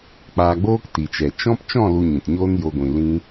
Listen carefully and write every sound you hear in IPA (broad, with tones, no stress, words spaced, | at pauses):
k͡paː˧ɡ͡boː˦kti˨t͡ʃɛ˨ t͡ʃɔ̃˦p t͡ʃɔ̃˦˨lu˨ ɲĩ˨tɲoː˦njo˧ɡʷĩ˨ lĩ˧